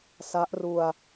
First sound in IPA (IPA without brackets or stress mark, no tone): s